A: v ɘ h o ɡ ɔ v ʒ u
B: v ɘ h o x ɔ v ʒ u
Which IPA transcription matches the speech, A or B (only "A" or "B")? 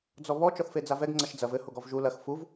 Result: A